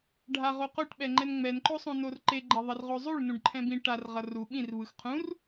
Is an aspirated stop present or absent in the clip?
present